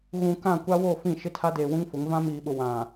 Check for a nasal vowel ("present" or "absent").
present